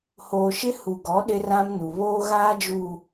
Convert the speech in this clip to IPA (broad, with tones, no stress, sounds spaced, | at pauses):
h oː˨ ʃ ɪ˦ h u˨ ɡ ɔ˨˦ ɗ ɪ˦ r ã˦ m n u˨ β oː˦ ɣ aː˦ d͡ʒ uː˨